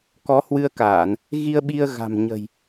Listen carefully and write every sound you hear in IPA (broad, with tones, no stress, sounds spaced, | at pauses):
k ɔ˨˦ h w ɨ˧ ə̯ k aː˧˩˨ n | ɣ i˧ ə̯ ɓ i˧ ə̯ ɣ a̤˨˩ m ɲ ə̤˨˩ j